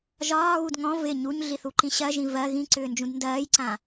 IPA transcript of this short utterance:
ʒɒːɣud ŋɔ̃ vɪ ɲuɲɮiθuǃĩ ɕɜʒĩ vɜ ɣĩǀʏːnd͡ʒũd ndɜːjǀã

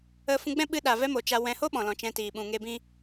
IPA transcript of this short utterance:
ə˧ fũ˧ɡ͡bɛ̃˦ɓɨ˧ ɗa˨vɛ˧mo˨ t͡ʃa˧wɛ̃˧ ho˦ɓɔ̃˨lɔ̃˨ t͡ʃɛ̃˧tiː˨ ɓũ˨ŋe˧ bĩ˧

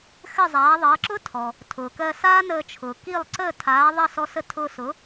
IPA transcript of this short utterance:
xɘ˥˩zˤaː˩˥ðˤʌː˩˥ ǁʊ˥tʰɔ˩ | tʰʊː˩kɜ˧saː˥ nəː˧t͡ʃʰʊː˩ki˥˩lˠ ǀəː˥˩tʰaː˩˥ ðˤɜ˥˩sɔ˧sə˥˩ tʰʊː˧sʊ˩˥

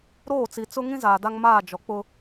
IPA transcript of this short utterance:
ɾoː˦˨t͡si˨t͡sʊ˦ ŋĩ˦zaː˨ da˦ŋmaː˦˨ d͡ʒɔ˨k͡pʊ˦

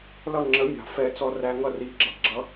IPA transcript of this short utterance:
lʌ˦˨ŋ͡ǁə˨˦ mʲɑ̤˨fɛ˧ t͡sɔ˧ræ˧ŋʌ˦˨ ri˨ɡ͡ǁʌ˨ ɡ͡ǁʌ˦

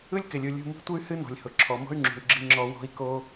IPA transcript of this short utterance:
ɯ˥lʲkɪ˩lʲu˩ lʲṳ˧mi̤˥tʷɨ˥y̯ hɨ˥nɔ̤˩lʲ hʊ˩ǁʰɔ˩mɔ̤˥y̯ŋ͡ǁṳ˩y̯ ɡ͡ǁi˧ŋ͡ǁɔ˧ wɔ̤˥i̯ko˥

